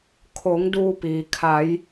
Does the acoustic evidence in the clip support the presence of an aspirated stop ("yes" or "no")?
yes